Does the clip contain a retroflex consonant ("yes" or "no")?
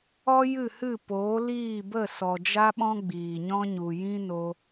no